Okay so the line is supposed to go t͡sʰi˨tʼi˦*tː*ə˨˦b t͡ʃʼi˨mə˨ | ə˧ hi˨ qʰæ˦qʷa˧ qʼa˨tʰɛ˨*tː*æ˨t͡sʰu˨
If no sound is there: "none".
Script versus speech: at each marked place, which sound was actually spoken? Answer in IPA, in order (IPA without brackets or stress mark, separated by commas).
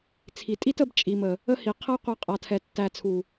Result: t, tː